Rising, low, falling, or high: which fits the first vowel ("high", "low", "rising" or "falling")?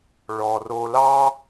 low